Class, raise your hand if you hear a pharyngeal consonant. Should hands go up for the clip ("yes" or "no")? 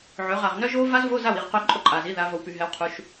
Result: yes